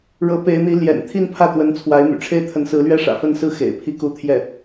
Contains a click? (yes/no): no